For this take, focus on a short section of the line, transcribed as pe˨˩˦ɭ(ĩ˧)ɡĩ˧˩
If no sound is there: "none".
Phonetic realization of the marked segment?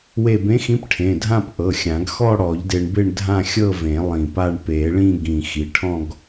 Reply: ĩ˥˧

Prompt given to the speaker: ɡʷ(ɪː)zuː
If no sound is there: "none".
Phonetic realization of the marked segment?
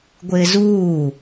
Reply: ɪː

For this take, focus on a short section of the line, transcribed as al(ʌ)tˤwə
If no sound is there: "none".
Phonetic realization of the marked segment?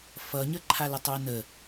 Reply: ʌ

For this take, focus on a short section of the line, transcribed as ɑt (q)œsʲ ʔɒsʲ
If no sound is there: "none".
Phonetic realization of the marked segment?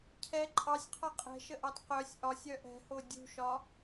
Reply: q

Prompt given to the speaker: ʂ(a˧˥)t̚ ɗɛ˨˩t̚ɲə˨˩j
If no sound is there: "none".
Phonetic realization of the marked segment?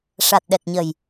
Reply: a˨˩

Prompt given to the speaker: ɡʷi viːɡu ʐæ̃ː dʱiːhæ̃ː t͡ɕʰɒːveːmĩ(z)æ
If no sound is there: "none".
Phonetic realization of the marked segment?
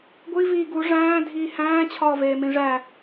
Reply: ʐ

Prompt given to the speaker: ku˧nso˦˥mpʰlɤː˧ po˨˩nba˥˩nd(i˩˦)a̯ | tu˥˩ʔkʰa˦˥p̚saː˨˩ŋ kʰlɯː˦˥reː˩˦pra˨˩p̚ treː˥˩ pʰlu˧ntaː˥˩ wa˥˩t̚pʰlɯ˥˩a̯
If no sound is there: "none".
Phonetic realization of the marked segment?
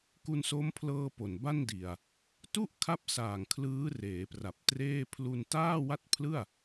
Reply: i˨˩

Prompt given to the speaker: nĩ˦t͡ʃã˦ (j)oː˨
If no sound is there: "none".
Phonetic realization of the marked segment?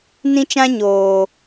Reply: ɲ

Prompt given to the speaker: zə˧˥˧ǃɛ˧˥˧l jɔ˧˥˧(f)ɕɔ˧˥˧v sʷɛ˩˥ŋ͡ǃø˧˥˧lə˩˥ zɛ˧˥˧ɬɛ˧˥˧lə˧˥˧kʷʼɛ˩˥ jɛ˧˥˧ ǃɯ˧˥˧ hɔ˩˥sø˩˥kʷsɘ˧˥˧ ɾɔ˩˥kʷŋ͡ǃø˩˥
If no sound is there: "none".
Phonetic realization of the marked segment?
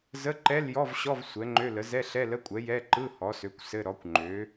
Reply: v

